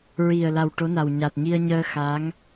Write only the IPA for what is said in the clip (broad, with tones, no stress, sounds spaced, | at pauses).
ɹ i˨˩ ə̯ l a˨˩ w ʈ o˧˥ n a˨˩ w ɲ a˨˩ t̚ ɲ i˧ ə̯ ɲ əː˧ x aː˧˥ ŋ